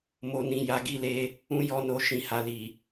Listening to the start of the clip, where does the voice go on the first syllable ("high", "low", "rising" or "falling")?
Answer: low